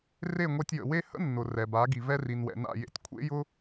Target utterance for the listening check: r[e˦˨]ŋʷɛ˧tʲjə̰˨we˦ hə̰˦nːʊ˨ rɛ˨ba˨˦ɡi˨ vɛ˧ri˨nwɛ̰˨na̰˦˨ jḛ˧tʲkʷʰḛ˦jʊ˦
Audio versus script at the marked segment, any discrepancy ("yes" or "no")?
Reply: no